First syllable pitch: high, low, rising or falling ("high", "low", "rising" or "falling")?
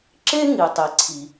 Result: high